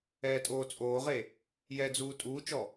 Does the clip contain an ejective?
yes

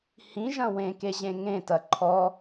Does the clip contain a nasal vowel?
yes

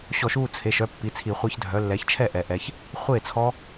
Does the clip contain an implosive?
no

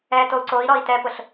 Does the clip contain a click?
yes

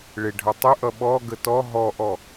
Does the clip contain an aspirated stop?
no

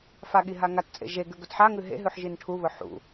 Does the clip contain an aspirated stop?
yes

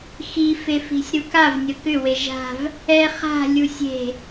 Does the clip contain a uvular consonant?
yes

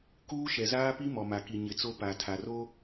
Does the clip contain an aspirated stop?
yes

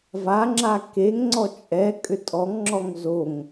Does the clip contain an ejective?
yes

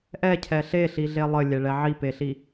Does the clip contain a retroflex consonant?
yes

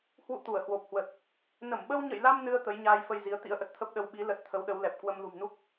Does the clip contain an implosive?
yes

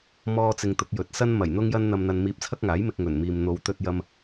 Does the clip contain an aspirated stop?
yes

